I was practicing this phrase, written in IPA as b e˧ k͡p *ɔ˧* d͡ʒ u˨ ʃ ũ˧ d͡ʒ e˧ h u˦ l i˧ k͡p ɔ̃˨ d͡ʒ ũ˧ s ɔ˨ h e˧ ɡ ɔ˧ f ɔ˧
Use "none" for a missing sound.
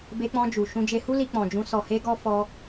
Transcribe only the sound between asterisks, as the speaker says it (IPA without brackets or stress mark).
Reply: ɔ̃˧